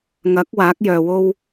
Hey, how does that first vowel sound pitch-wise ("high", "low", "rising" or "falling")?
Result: rising